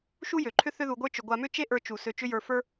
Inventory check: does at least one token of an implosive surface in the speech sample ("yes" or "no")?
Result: no